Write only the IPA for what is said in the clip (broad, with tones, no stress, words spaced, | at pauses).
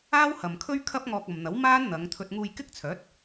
aː˥whɐ˨mkʰɵ˥ɥkʰɐ˥p̚ ŋɔː˧k̚ɐ˨mn̪ɐ˨˥w maː˥n n̪ɐ˨˧ŋt̪ʰɵ˧t̚ ŋuː˧jkɪ˥k̚t͡sʰœː˨˥t̚